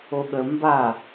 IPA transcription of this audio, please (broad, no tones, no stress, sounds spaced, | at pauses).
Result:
o ɠ ə m b a